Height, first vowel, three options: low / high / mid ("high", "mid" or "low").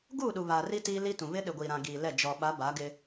high